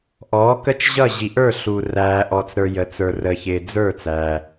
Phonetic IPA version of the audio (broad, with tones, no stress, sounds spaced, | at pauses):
ʔ ɔː˩˥ k ə˥˨ t͡ʃ ʑ ʌ˥˨ ʑ i˨ ʔ ə˞˥˨ ɬ u˨ r æː˨ ʔ ɔ˨ t͡s ɾ ə˞˨ j ə˩˥ t͡s ə˞˨ r ə˨ ç ɪː˨ d͡z ə˞˥˨ t͡s æ˨